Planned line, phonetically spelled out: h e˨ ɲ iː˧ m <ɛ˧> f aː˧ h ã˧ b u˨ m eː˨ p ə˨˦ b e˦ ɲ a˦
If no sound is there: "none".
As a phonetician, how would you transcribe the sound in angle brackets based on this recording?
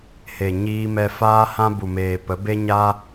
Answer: ɛ˧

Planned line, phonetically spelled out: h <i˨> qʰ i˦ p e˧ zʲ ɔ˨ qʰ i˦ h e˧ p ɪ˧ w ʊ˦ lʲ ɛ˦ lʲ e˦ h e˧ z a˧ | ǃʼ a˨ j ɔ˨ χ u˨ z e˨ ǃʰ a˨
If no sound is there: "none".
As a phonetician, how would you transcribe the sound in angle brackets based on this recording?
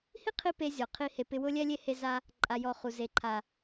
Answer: i˦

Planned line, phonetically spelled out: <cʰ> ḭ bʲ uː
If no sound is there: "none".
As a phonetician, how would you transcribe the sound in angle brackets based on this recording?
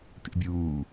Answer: t̪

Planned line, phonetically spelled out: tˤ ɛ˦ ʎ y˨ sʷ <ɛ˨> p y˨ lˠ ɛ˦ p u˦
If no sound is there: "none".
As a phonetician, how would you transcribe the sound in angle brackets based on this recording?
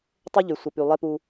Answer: ə˨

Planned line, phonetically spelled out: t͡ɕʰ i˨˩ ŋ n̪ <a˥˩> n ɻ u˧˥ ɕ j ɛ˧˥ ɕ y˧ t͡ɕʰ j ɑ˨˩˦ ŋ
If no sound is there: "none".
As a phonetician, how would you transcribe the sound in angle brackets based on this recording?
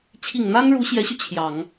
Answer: a˥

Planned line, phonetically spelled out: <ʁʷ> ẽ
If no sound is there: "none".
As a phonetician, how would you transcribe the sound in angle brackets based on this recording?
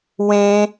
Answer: w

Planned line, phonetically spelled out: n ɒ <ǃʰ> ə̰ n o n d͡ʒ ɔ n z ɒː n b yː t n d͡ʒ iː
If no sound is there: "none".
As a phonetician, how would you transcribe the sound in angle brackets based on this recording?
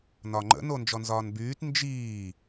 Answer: ŋ͡ǃ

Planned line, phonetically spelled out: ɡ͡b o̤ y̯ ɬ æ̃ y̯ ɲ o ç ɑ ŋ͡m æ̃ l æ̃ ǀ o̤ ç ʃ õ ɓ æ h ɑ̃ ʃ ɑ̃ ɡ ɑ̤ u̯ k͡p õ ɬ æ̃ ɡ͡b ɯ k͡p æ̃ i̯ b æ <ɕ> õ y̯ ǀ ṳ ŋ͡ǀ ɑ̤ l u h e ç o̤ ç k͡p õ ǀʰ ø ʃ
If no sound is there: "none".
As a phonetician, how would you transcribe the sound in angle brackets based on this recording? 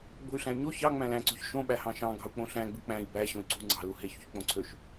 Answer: ɕ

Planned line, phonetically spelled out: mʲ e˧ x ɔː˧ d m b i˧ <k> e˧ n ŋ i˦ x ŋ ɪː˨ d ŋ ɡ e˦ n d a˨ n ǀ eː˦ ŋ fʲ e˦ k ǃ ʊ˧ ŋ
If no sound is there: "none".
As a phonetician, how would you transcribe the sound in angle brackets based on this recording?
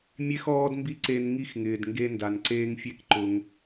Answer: ǀ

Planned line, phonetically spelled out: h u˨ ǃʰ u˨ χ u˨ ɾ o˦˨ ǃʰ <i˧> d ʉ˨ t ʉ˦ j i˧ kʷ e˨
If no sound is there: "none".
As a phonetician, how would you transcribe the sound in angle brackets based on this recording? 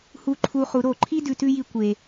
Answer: i˦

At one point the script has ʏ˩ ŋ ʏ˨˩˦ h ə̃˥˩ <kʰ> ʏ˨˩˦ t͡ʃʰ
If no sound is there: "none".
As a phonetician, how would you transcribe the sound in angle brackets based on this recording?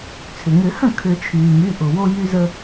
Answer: kʰ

